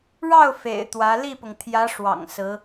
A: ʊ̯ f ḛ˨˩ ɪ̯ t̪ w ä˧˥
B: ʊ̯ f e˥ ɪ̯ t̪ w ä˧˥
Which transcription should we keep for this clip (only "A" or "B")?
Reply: A